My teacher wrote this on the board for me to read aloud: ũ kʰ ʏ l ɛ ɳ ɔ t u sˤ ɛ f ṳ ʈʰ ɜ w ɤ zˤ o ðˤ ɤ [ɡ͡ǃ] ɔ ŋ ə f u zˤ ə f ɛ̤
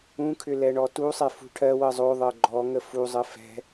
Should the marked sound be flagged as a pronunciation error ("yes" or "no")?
no